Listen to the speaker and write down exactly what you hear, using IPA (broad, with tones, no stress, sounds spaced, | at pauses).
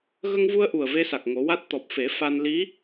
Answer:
ɣ ə˧ ŋ v u˧ ə̯ ʔ u˨˩ ə̯ v e˧ s a˨˩ k̚ ŋ o˨˩˦ w a˦˥ t̚ t̪ ɔ˨˩ p̚ f e˨˩˦ f a˧ n l i˧˥